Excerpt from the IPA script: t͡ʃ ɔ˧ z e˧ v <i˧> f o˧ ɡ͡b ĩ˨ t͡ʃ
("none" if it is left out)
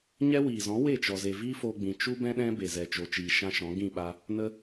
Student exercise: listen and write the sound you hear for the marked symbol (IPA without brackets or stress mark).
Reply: i˦